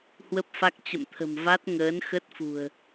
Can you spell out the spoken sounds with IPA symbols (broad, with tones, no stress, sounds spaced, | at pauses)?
h w ə˦˥ p̚ f a˦˥ k̚ t͡ɕ ə̰˧˨ m t̪ʰ ə̤˨˩ m v a˦˥ t̚ ŋ əː˨˦ n x ə˦˥ t̚ f ṳ˨˩ ə̯